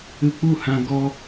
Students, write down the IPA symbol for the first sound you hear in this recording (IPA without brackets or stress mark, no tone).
ɨ